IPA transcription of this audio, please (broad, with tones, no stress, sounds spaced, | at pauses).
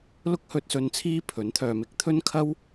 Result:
l ʊ˥ k̚ h ɵ˧ t̚ s ɵ˧ n t͡sʰ iː˥ pʰ ɵ˨˥ n t̪ʰ œː˨˧ m ɪ˨˥ k̚ t̪ʰ ɵ˥ n kʰ ɐ˥ w